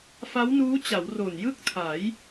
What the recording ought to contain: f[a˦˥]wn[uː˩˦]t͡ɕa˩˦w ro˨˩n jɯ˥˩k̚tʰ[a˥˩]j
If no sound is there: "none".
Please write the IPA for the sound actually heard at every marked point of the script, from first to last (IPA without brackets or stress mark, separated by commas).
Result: a˦˥, uː˦˥, a˩˦